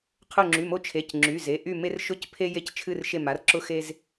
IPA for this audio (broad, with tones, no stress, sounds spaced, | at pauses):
qʰ ʊ˦˨ ŋ͡ǁ y˩˧˩ m o˦ t͡ʃʰ e˩˧˩ c ŋ͡ǁ y˩˧˩ z e˩˧˩ ʔ y˦˨ m e˦ r ʃ ʊ˦ c pʰ e˦ j e˦˨ c t͡ʃʰ ɨ˦˨ r ʃ e˦˨ m a˩˧˩ r ǁ ʊ˦ x e˦ z